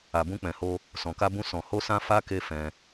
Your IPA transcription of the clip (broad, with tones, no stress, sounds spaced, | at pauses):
a˨ b ũ˧ k͡p ɛ̃˨ h o˧ | s ɔ̃˨ k a˧ b ũ˧ s ɔ̃˨ h o˧ s ã˧ f a˦ k e˦ f ɛ̃˧